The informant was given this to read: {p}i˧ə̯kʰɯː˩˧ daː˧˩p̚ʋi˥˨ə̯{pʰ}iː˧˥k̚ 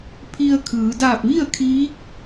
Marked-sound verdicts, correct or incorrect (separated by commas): incorrect, incorrect